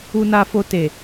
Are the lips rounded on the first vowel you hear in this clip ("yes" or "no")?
yes